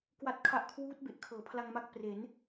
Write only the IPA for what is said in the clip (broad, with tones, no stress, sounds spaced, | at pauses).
k w a˨˩ t̚ kʰ a˨˩ ʔ kʰ w uː˦˥ t̚ b e˨˩ ʔ kʰ ɤː˩˦ pʰ l a˧ ŋ m a˦˥ k̚ p r e˩˦ n